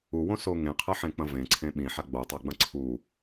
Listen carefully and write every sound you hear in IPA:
uwõso ŋẽqʰɐħẽk͡pɐ̃ vẽǀʰẽ ɓĩħa ɡ͡botˤaɡ͡bɐ̃ ǀʰu

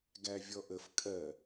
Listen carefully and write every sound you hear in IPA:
ɡævʲɔʔəf kʼɜ

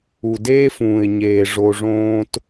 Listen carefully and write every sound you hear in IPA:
u˨deː˦fũː˨ɪ̯ɲeː˨ ʐo˦ʐõː˥t

